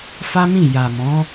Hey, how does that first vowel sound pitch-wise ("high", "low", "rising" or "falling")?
high